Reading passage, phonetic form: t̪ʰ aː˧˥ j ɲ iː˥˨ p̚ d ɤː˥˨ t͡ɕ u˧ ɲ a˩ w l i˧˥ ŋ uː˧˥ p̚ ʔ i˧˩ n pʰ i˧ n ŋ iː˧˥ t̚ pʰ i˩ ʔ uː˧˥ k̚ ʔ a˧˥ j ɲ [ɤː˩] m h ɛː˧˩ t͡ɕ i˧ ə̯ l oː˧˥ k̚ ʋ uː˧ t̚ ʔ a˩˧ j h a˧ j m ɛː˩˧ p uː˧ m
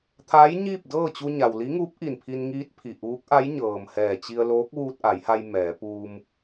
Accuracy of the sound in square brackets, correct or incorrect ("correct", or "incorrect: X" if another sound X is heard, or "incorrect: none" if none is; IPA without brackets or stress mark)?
correct